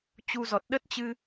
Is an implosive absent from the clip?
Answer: no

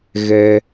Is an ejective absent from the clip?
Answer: yes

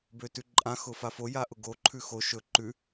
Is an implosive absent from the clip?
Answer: yes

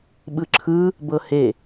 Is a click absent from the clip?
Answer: no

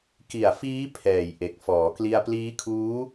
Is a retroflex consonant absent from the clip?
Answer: yes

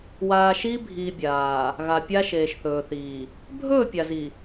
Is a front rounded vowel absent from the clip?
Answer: yes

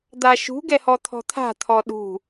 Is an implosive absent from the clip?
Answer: no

